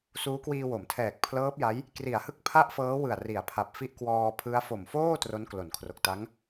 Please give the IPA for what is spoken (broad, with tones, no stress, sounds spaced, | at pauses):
s uː˦˥ k w iː˧ w o˩˦ m tʰ ɛː˨˩ k̚ pʰ l ɤː˦˥ p̚ j a˦˥ j | k r i˩˦ a̯ h ɯ˦˥ k̚ pʰ a˥˩ ʔ f ɤː˦˥ w ɯ˨˩ a̯ r i˩˦ a̯ pʰ a˨˩ p̚ f i˥˩ ʔ k w ɔː˧ pʰ ɯ˦˥ a̯ f o˨˩ m f oː˥˩ t r o˦˥ n k l o˩˦ n kʰ r o˨˩ k̚ t a˦˥ ŋ